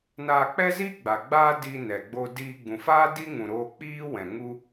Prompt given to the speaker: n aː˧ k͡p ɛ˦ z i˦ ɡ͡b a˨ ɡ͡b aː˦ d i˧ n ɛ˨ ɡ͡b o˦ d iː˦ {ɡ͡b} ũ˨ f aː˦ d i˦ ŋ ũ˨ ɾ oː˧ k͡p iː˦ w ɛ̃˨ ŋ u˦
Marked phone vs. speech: correct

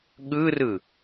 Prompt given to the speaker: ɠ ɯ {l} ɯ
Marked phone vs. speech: incorrect: r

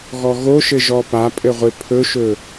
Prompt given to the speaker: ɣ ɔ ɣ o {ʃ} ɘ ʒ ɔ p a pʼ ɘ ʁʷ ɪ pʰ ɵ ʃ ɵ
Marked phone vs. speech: correct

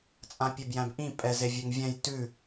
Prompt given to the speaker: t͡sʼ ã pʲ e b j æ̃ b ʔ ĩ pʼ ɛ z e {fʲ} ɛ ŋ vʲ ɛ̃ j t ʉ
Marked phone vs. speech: incorrect: vʲ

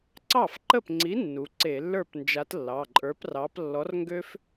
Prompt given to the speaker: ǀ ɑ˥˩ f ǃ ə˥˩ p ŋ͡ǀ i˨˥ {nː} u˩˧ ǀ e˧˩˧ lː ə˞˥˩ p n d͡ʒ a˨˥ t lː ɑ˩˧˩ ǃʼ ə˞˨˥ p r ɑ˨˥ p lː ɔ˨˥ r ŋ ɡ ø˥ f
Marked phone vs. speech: correct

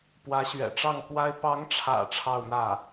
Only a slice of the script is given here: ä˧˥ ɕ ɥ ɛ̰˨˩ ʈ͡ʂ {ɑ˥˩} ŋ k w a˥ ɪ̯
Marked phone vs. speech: correct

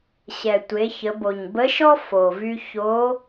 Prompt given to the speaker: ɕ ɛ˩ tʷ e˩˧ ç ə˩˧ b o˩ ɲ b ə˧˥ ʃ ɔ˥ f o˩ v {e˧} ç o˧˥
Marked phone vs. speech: incorrect: y˧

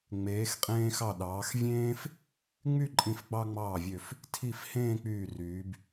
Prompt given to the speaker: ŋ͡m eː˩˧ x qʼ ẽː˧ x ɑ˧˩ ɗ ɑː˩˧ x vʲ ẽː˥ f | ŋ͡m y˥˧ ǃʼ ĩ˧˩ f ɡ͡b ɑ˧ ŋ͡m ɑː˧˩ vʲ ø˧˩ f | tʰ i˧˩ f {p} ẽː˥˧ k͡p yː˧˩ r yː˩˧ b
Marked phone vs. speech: incorrect: h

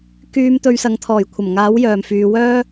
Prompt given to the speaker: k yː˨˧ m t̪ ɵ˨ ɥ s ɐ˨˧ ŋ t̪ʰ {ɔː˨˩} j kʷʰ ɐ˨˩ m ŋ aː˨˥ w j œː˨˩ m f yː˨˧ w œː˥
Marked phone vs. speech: correct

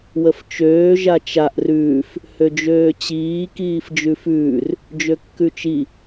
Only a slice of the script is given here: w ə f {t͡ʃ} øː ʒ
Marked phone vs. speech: correct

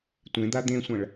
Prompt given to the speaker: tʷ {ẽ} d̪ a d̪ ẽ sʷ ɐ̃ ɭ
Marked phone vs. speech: correct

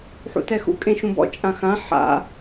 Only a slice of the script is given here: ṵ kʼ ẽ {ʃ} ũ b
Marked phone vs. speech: correct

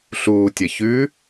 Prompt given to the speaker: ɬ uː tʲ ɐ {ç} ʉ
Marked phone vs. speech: correct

